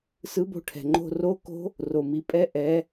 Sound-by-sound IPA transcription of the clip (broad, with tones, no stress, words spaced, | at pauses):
sɯ˧˥bo̤˧˥ʈʰɛ̤˩ŋ͡ǃo̤˧ ro˧˥ko̤˧˥ | ro˩mi˩˧pʼɛ˧˥ ʔɛ˩˧